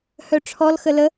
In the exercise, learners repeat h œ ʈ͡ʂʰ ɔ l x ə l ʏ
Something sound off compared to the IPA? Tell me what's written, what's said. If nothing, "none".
ʏ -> ə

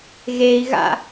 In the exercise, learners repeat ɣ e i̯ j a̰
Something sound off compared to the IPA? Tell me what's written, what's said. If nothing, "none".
j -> ɣ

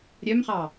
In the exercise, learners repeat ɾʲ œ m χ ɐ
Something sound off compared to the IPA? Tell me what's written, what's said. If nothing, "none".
ɐ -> ɑ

